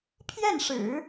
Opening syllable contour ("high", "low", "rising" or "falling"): falling